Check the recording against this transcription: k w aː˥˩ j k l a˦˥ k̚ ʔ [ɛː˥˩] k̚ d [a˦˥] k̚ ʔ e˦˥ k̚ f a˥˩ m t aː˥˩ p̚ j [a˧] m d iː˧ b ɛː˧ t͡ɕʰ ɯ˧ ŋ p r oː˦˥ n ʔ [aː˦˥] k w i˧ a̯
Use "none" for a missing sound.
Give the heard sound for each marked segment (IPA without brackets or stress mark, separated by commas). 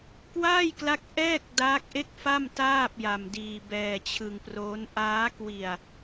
ɛː˥˩, aː˦˥, a˧, aː˦˥